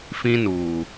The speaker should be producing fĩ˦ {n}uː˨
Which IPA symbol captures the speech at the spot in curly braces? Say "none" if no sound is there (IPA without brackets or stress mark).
n